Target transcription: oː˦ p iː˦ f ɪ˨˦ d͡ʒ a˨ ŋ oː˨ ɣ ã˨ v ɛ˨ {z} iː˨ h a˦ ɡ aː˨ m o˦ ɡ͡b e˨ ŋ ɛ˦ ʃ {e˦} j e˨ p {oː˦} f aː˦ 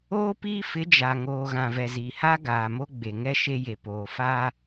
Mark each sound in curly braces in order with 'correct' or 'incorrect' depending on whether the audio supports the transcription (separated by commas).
correct, correct, incorrect